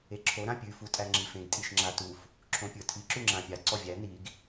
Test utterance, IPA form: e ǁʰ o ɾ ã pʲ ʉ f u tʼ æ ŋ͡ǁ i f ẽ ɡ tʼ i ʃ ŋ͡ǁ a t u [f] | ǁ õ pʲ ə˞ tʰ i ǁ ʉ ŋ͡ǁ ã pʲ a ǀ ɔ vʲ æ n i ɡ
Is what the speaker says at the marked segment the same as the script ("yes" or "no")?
yes